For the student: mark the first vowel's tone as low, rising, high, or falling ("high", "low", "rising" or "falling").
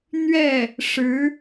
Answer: falling